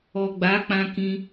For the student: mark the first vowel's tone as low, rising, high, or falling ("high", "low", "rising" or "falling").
low